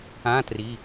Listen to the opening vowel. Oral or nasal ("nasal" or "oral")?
nasal